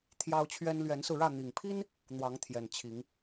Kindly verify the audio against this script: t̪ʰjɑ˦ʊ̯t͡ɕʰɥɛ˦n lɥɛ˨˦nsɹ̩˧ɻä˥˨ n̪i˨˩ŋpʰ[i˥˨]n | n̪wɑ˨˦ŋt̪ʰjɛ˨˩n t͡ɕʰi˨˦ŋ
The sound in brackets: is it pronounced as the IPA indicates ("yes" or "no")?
no